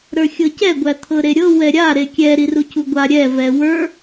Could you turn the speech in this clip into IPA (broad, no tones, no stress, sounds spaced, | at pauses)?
ɾ ə˞ xʲ ɤ c ɛ ɡʷ æ t̪ʰ ɤ ɾ e ɾʲ ɤ w ɛ ɾʲ a ɾ e kʲ ɛ ɾ i r u c u ɡʷ a ɾʲ ɛ v ɛ w ə˞